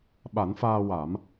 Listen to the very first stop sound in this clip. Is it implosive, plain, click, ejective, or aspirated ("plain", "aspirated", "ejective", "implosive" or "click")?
implosive